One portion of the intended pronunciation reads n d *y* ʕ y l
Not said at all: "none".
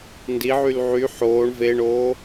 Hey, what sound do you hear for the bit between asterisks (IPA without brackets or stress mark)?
i